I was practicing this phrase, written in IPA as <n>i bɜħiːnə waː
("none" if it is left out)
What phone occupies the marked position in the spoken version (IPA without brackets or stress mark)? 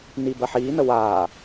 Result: n